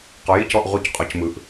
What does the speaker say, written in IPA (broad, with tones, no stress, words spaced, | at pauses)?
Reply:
qɔ˩˧ji˥˩cɔ˥˩ʔʁu˧˩c qʼɔ˩˧cmɯ˩˧ʔ